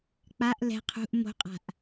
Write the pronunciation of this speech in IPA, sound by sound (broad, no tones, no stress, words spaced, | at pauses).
k͡paʔ lɛ̤ qʰṳʔ mo̤qʼa̤ʔ